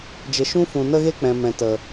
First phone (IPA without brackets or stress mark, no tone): d͡ʒ